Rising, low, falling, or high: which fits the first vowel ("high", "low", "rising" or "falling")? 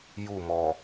falling